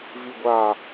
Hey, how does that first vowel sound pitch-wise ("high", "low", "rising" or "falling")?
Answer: low